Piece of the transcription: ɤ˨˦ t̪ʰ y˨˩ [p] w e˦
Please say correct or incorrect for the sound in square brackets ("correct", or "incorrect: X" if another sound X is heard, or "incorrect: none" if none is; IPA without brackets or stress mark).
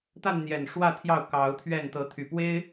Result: correct